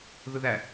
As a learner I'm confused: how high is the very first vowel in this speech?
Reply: high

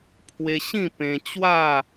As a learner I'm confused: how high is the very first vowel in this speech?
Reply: mid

